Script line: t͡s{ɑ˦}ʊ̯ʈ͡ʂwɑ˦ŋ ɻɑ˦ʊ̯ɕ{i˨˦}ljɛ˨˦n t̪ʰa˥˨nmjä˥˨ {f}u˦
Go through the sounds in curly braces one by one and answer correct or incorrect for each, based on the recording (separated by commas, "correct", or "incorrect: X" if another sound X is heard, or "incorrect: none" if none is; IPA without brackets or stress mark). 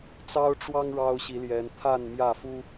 correct, correct, correct